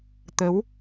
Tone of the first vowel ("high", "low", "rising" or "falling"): rising